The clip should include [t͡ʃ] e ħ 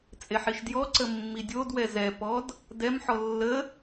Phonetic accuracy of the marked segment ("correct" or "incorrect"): incorrect